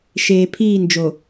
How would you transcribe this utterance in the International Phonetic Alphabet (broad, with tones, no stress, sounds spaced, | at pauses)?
ʃ eː˨ pʰ iː˦˨ n d͡ʒ o˨